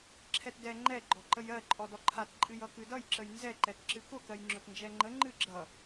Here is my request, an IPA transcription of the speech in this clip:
ǁʰ ɛ t d ɛ ŋ͡ǃ ɛ ɡ͡ǃ ɔ ǃ ə j ɜ ǃʼ ɔ d ɔ ǃʰ a t ǃʼ ɨ j ʌ k ɨ d ʌ j ǁ ə j n z ɛ ǃ ɛ t ǁ ɨ k ʊ k ɜ j ŋ͡ǁ ʊ t n d͡ʒ ɛ ŋ͡ǃ ə ŋ͡ǃ ɨ ɡ͡ǁ ʌ

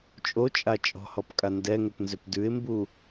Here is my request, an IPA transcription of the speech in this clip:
t͡ʃʼ o t͡ʃʼ a t͡ʃʼ ɔ̤ h ɔ p kʼ a n d ɛ ŋ ʏ p n z ʏ p d ʉ ɪ̯ m b u

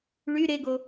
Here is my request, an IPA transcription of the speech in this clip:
ɭ y ɾ e ɡ o

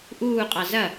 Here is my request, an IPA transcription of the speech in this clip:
ʔ uː qʼ ɑ z ɐ

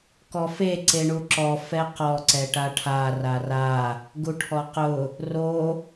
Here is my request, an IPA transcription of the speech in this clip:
k ɔ f e ǀ e ɳ u ǁ ɔ f ɛ q ɔ ǀ ɛ ʈ a ʈʰ a r a r a | ɡ u ʈʰ ɔ q ʊ | r o

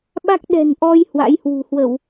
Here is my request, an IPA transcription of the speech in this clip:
ɓ a˦˥ k̚ ɗ ɛ̤˨˩ n ʔ ɔ˧ j h w a̰˧˥ j h w ṳ˨˩ h w ə˧˩˨ w

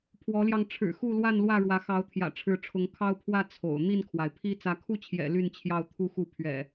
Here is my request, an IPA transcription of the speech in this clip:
pʰ w ɔ˨˦ l j ɑ˧ ŋ ʈ͡ʂʰ ɻ̩˨˩ x u˥˨ l w a˥˨ n l w ä˥˨ ɻ w ä˨˦ x ɑ˨˦ ʊ̯ t̪ʰ j ä̰˨˩ ʈ͡ʂʰ ɻ̩˨˦ ʈ͡ʂʰ ʊ˨˦ ŋ kʰ ɑ˦ ʊ̯ pʰ w ä˥˨ t͡sʰ o̰˨˩ ʊ̯ n̪ i˥˨ n kʰ w a˩ ɪ̯ pʰ i˦ t͡s ä˨˦ kʰ u˥˨ t͡ɕʰ j ɛ̰˨˩ l y˥˨ n t͡ɕʰ j ɑ˥˨ ʊ̯ t̪ʰ u˥˨ x u˥˨ pʰ ɥ ɛ̰˨˩

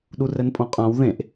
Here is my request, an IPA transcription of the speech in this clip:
ɗ u r ɛ n pʼ õ qʼ ã w ð ẽ ʔ

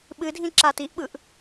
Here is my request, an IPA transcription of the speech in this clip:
ɓ ɨ dʱ ĩ ǁ a t i ʔ ɓ ɯ ʔ

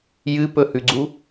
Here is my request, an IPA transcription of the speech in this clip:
j ɨ p ɵ h ʉ ɡ͡ǀ u

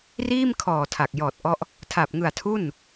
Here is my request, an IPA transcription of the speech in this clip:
r iː˥˩ m kʰ ɔː˨˩ tʰ a˨˩ k̚ j ɔː˨˩ t̚ ʔ ɔ˦˥ ʔ | tʰ a˨˩ p̚ ŋ ɯ˨˩ a̯ tʰ u˥˩ n

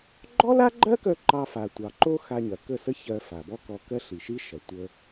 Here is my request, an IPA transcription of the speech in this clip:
ɡ͡ǃ ɔ˦ l a˦ ɡ͡ǃ ɜ˦ k œ˧ ǃ ɑ˧ f a˨ tʷ ɑ˨ ǃ o˦ x a˧ ɲ ɐ˨ k ə˦˨ s ə˦ ç ɜ˧ f a˨ b ɔ˦ k ɔ˧ k ɜ˦ ɬ i˨ ʃ i˦ ʃ ɐ˨ tʷ ə˧

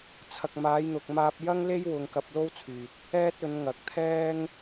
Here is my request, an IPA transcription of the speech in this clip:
t͡sʰ ɐ˨ k̚ m aː˨˧ j n̪ ʊ˨ k̚ m aː˧ p̚ j ɐ˥ ŋ l e˥ j w ʊ˧ ŋ k ɐ˧ p̚ l o˥ w t͡sʰ yː˨ t̚ | ɛː˥ t̚ ɵ˨˧ n ŋ ɐ˨ k̚ t̪ʰ ɛː˥ ŋ

